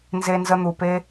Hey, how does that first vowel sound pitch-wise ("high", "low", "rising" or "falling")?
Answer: high